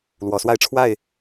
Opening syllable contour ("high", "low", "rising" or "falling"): rising